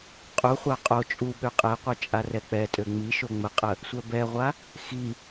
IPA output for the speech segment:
qʼ u χʷ a qʼ o t͡ʃʼ u ɓ ø qʼ ɛ qʷ œ t͡ʃʼ a r ɛ k͡p ɛ tʼ ø ŋ͡m i ʃ o ŋ͡m ə qʼ ə | sʷ œ b ɛ ʁʷ a | x i

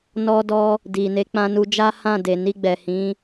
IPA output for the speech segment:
n ɔ˧ d ɔ˧ | d i˨ n e˨˦ k͡p ã˧ n u˧ d͡ʒ a˦ h ã˦˨ d e˨ n i˧ ɡ͡b ɛ˨ h ĩ˨˦

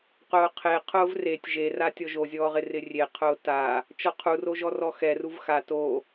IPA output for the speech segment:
q ʊː qʰ e qʰ ʊː v r e tʲ ʒ e r a tʲ ɔ ʒ o zʲ ɔː ʁ ɪ r ɪ rʲ e qʰ ʊː t a | t͡ʃ ɔ qʰ u r o ʒ ɔ r ɔ x ɛ r u v x a t o

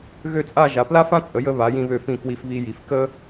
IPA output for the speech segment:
ɣ ø˥˧ t͡sʼ a˥˧ ʒ a˩˧ p l a˥ f ã˥ t͡sʼ ə˩˧ j ə˧ β a˩˧ j ĩ˧ β ø˧˩ f ĩ˧˩ k w i˧ f β i˧ j i˩˧ f k ə˥

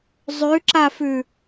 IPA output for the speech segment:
zˤ ʉ ǁ a f ʉ

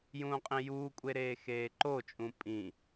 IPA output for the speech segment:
j ũː qʼ ĩ j uː kʷʼ e ɾ eː x eː ǃ o t͡ʃʼ ũ pʼ ĩ

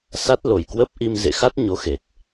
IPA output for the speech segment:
s a˦˥ t̚ l o˨˩ j k w ə˦˥ p̚ ʔ i˧ m z ḛ˧˨ x a˦˥ t̚ ɲ o˨˦ x e˨˩ t̚

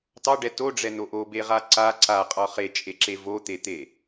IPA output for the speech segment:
t ɑ ɖ ɛ t o ɖ͡ʐ ɛ n o ʔ o b e ʁ a ǀ a ǀ a qʼ ɒ χ e t͡ʃʼ e ǁ e v o t̪ e t̪ e

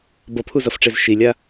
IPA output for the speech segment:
b ʌ pʰ u z ʌ f ʈ͡ʂ e z ʃ i lʲ a

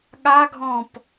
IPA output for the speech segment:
ɠ a ɡʱ ɔ̃ p

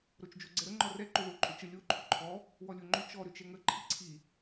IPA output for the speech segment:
ɾ o t͡ʃ d͡ʒ o ɡ͡ǀ ɛ ɾ ə ŋ͡ǃ ɔ r ɛ ǃ ʏ ð o ǃʼ ʏ t͡ʃ ə lʲ o ǃʰ ʏ ǃʰ ɔ | w ɔ lʲ o ŋ͡ǃ ʏ t͡ʃ ɔ ɾ ʏ t͡ʃ ɛ ŋ ə ǃʰ i ǀʰ i

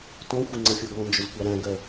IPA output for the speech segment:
t ɔ̃ xʷ ɪ ŋ͡ǀ ʌ fʲ ɔ ɡ ɔ̃ n d͡ʒ ʊ z kʷ ɑ ɾ æ̃ ɡ ɜ

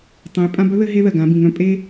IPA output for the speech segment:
tˤ ẽ˩˧ j pʼ ã˧ b œ˥ ð ɘ˧ ɦ e˧ ð ɜ˩ ɡ ã˩˧ b ĩ˩ ŋ œ̃˧ pʼ e˧

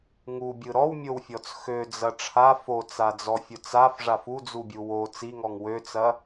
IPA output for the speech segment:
ŋ u bʲ ɯ ɾ ɔ w mʲ o w fʲ ɔ t͡s x ø d͡z ɐ ʈ͡ʂʰ a f o t͡s a d͡z ɔ fʲ ʊ t͡s a f ʐ a f u d͡z u bʲ u w o t͡s i ŋ ɔ ŋ w ø t͡s ɐ

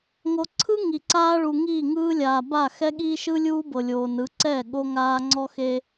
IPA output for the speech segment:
ŋ o˨ ǀʰ ɯ˦ ŋ i˨ ǀ aː˦ ɭ u˨ ŋ iː˦˨ ŋ ɯː˦ lʲ aː˨ b a˦˨ x ɛ˦ ɠ iː˦ ʃ ɯ˦ lʲ uː˦ b ɤ˨ lʲ oː˨ n ɯ˨˦ ǀ ɛ˦˨ ɠ o˦ ŋ aː˦ ŋ͡ǀ ɔ˦ x e˦

